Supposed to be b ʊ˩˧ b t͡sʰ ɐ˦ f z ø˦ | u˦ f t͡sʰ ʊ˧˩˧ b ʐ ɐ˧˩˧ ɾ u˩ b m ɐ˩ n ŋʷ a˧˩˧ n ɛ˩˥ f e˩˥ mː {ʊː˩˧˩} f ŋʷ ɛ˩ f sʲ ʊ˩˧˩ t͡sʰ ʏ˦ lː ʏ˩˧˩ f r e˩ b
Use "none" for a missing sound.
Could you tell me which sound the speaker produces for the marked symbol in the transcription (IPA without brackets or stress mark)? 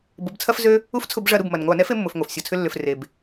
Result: ʊ˩˧˩